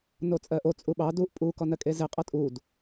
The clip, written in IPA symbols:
not͡sʼɜʔo t͡sʼuɓɑ duʔ pʼu kɔnɜkʼeze qʼʌtʼud

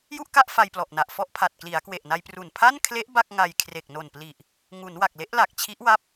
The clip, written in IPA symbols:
ju˥˩ʔka˥˩ʔ fa˧jplɔ˨˩ʔna˨˩ʔ fɔ˥˩ʔpʰa˨˩t̚ kli˩˦a̯kwe˨˩ʔna˧j pru˨˩n pʰa˥˩nkʰle˦˥ʔ ba˥˩k̚ŋa˧j kʰre˨˩k̚no˨˩npli˨˩ʔ | ŋu˩˦nwa˨˩k̚le˦˥ʔ la˨˩k̚t͡ɕʰi˦˥ʔwa˦˥p̚

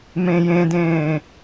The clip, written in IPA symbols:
mẽjẽdẽː

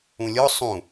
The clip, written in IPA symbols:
ũlʲɔ sˤũ

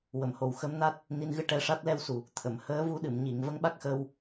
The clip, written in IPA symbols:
wə˨˩˨mho˨˩w xəː˧˥mna˦˥t̚ | ni˧nɣɨ˧ʈɛ˧ʂa˦˥t̚ lɛ˧wsu˨˩ | t̪ʰə˨˩˨mhəː˧˥vu˧˥ɗɨ˨˩˨m ɲi˨˩˨ŋ və˧˥ŋɓa˦˥k̚xə˧w

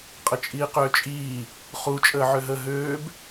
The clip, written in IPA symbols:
qʼət͡ʃʼiːqøːt͡ʃʼiː | χu t͡ʃʼəːʕøɦəːɦøːb

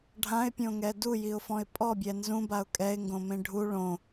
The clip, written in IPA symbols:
ɖʱãɪ̯pʲõŋɛ dujiʊ̯fɔ̃ɪ̯ pʼɔbʲɛ nzũbaʊ̯ kʼɛɪ̯ŋɡõmẽ ɖʱu ɭõ

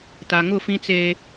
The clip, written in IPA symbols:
ta˨ŋʊ˦˨ fĩ˦t͡se˦

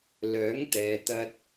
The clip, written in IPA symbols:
lœː˨˥ŋt̪ɛː˨t̪ɐ˧t̚

